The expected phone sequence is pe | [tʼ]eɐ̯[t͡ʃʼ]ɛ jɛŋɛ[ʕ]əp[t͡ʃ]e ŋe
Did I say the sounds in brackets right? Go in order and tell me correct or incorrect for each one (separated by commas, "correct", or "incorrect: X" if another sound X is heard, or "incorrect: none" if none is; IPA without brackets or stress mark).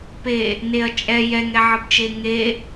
incorrect: n, correct, correct, correct